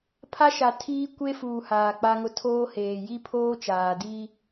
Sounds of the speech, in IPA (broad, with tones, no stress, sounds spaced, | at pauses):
pʰ a˦ ʃ a˨ tʰ iː˦ kʷ e˦ f uː˨ h aː˨ k͡p a˦ ŋ ʊ˦ tʰ oː˦ h eː˨ j i˦ pʰ oː˦ t͡ʃ aː˨ d i˦